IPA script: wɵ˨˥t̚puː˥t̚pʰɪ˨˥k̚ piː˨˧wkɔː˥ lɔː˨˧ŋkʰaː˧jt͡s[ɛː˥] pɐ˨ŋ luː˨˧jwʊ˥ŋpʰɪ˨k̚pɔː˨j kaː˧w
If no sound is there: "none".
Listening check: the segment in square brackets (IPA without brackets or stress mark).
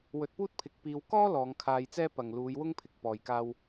ɛː˥